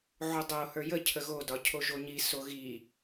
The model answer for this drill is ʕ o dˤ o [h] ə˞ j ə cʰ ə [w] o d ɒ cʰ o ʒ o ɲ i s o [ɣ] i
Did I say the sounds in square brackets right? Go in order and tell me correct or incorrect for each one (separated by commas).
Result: correct, incorrect, correct